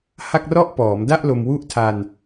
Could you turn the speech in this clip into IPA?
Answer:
h a˥˩ k̚ r ɔ˥˩ ʔ p ɔː˩˦ m d a˥˩ ʔ l o˧ m w u˦˥ ʔ tʰ a˧ n

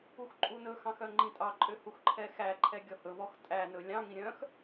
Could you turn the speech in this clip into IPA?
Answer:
u x ǃʼ u n ɵ x ɑ̃ x œ ŋ͡ǃ ĩ tʼ ɑ ǃʼ ø h u x ǃʰ ɛ x æ ǃʰ ɛ ɡʲ ɔ h ɵ v ɔ x tʼ æ n ɵ lʲ ɑ̃ ŋ ĩ ɾʲ œ̃ x

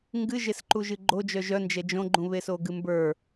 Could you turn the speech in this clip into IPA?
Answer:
ŋ ɡ ɨ ʒ e s ǃ u ʒ ɨ ɡ͡ǃ o d͡ʒ œ ʒ œ n d͡ʒ ɛ d͡ʒ õ ɡ͡ǃ ũ β e s o ɡ ɨ m b ə˞

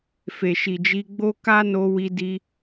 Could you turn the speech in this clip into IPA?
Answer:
f e˨ ʃ i˨ d͡ʒ i˧ ɡ͡b o˦ k a˦ n o˧ w i˧ d i˧

